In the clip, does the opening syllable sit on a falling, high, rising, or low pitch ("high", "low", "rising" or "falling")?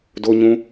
high